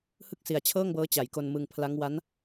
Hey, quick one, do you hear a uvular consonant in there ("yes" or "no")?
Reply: no